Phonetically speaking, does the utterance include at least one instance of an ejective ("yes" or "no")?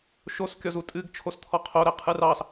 yes